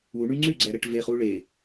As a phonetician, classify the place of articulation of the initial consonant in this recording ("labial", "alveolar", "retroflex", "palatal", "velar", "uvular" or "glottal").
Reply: retroflex